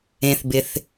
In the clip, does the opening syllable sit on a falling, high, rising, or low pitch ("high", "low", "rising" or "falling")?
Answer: low